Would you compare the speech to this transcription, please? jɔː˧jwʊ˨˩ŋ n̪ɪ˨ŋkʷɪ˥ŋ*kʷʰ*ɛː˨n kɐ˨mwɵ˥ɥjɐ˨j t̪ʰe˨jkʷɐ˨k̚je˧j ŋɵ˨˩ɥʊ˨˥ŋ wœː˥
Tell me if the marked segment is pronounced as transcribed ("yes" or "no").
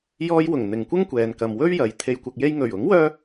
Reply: no